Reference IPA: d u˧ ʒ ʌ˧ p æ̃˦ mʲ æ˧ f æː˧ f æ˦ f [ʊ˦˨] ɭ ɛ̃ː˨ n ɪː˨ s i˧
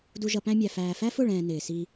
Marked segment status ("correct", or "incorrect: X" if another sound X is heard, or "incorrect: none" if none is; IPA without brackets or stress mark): correct